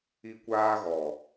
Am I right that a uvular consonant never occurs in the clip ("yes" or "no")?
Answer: yes